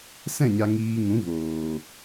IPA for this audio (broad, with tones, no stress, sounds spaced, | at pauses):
s ɛ̃˦˨ ɲ a˧ ŋ iː˧ ŋ ũ˨˦ v oː˨